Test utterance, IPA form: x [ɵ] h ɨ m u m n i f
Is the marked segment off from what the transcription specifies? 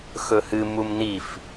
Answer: no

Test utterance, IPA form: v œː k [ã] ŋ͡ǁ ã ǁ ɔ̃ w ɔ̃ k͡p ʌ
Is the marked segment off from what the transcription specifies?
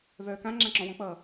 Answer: no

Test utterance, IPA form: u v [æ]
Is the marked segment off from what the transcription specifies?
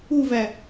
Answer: no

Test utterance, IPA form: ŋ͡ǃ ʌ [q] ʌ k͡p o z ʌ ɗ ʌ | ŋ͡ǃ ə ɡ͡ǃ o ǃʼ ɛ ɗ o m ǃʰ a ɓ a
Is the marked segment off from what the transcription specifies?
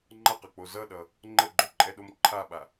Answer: no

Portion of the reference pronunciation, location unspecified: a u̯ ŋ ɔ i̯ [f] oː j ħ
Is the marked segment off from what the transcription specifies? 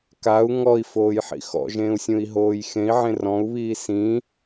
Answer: no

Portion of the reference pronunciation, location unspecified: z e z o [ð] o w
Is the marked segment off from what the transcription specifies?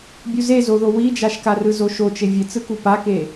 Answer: no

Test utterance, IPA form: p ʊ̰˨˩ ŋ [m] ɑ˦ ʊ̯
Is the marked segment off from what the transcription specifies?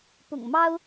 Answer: no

